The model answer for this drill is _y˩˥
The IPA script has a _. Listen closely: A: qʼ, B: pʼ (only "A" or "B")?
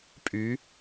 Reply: B